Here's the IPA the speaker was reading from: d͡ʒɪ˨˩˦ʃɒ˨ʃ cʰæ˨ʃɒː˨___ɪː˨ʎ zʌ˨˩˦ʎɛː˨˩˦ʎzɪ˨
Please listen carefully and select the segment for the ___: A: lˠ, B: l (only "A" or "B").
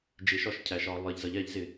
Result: A